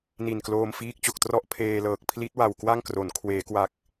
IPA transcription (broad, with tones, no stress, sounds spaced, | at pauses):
n i˨˩ n k l oː˧ m f iː˦˥ k̚ t͡ɕ o˨˩ k̚ t r ɔ˥˩ ʔ pʰ eː˧ l ɤː˨˩ k̚ pʰ l i˦˥ t̚ w a˨˩ w k w a˥˩ ŋ k r o˩˦ n kʰ w eː˩˦ k w a˨˩ k̚